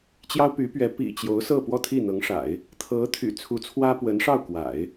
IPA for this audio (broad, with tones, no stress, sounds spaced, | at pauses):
t͡ɕ j ɑ˥ ʊ̯ p y˧˥ p ɥ ɛ˧˥ p ḭ˨˩ t͡ɕ j o˧˥ ʊ̯ s ɤ˥˧ p w ɔ˥˧ t̪ʰ i˥˩ n̪ ɤ˧˥ ŋ ʂ a̰˨˩˦ ɪ̯ | t̪ʰ ɤ˧˥ t̪ʰ y̰˨˩ t͡sʰ u˧˥ t͡sʰ w ä˥ p w ə˧˥ n ʂ ɑ˥˩ ʊ̯ k w a̰˨˩˦ ɪ̯